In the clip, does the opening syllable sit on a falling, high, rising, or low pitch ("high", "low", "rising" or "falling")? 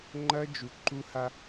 high